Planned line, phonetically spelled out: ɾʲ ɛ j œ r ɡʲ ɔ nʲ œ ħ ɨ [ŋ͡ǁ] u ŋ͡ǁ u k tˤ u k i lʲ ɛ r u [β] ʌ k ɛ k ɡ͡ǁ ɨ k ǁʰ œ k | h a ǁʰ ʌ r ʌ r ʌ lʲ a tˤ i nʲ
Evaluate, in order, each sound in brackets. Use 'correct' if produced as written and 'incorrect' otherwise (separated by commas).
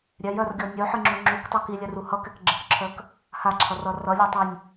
correct, incorrect